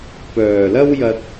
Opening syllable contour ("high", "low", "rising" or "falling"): low